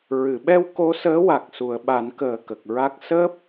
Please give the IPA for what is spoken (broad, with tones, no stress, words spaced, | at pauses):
ɹɨ˨˩˨ɓɛ˧w ko˧˥ səː˧˥wa˨˩k̚ su˨˩˨ə̯ɓa˨˩˦n kəː˨˩ kə˨˩k̚ɹa˦˥k̚ səː˦˥p̚